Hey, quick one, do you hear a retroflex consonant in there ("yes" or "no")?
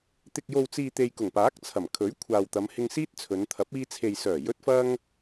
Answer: no